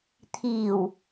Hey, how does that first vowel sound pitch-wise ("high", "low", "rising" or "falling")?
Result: low